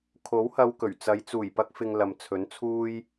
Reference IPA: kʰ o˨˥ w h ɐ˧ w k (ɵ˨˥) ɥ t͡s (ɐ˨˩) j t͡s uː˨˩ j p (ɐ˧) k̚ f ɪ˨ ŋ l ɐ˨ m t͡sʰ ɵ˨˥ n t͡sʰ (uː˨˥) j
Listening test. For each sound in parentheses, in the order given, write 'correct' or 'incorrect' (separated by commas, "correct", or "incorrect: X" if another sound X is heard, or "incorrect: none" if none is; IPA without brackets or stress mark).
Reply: incorrect: ɵ˨˩, incorrect: ɐ˨˧, correct, incorrect: uː˧